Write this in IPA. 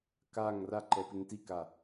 k a ŋ r a ǃ ɛ p ɪ ŋ t i k a

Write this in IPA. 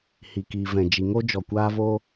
h i˨ k iː˨ v ɛ̃˨ d͡ʒ i˨ ŋ o˦ d͡ʒ ɔ˨ kʷ aː˧ v o˧

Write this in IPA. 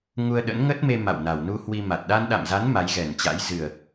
ŋ u˧ ə̯ ɗ ə̰˧˥ n ŋ ə˦˥ t̚ m e˧ m a̰˧˨ w n a˨˩ w n u˧ h w i˧ m a˨˩ t̚ ɗ a˧ n ɗ a̰˧˨ m z a˨˦ n m a˨˦ j ɣ ɛ˨˩ n t͡ɕ a̰˧˥ j z ɨ˨˩ ə̯

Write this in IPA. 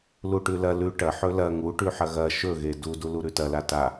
l u ʈ ʉ l ɐ l ʉ ʈ ɐ ħ ɵ l ɐ ŋ u ʈ ʉ ħ ɐ ɣ ɐ ʃ ɵ ɣ e d u d u l u ɾ ʉ t ɐ l a t a

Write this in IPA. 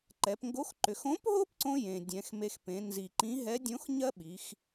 ǃ ɛ˩˧ p ŋ ɡ o˧˥ x ǃ ʏ˩˧ x õ˧˥ p ɦ o˥ p ǀ õ˧ j ẽ˩ dʲ ɛ̃˩˧ x m e˧ x p ẽ˩˧ n z i˩ ǃ ĩ˧˥ ɦ ɛ˧˥ dʲ õ˧˥ x ɲ ɜ˥ ɓ i˩˧ x

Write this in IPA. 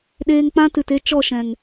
ɗ eː˧ ŋ k͡p ã˦ t ɨ˨ t e˦ t͡ʃ ɔ˦˨ ʃ ɛ̃˨ ŋ

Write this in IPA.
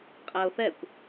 qʼ æ ʊ̯ θ ɛ kʷ

